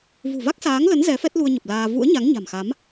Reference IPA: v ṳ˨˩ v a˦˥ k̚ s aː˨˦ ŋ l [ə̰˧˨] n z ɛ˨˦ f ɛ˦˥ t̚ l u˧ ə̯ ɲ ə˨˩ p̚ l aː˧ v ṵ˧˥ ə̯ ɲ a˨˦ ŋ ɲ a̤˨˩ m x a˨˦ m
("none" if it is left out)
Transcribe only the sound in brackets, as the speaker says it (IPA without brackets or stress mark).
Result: ə˨˦